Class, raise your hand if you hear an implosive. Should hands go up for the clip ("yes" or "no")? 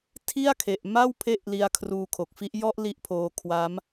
no